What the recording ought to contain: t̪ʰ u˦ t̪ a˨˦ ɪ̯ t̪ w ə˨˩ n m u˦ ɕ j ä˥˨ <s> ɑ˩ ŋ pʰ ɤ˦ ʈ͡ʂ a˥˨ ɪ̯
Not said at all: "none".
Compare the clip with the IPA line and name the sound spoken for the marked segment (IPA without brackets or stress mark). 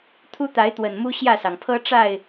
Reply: s